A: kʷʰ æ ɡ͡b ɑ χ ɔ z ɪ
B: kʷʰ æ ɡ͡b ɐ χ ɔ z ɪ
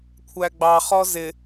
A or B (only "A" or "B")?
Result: A